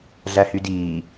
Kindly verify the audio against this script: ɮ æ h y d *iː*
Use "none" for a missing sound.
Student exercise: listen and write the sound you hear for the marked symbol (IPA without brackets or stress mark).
iː